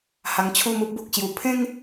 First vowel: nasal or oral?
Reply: oral